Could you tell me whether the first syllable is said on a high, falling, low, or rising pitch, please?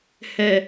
low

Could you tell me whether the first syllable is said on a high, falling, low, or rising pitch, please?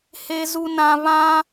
low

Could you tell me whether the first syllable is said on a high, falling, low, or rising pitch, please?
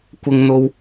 high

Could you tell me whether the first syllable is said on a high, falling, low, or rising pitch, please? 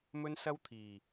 high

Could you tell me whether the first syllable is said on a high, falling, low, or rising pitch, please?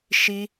high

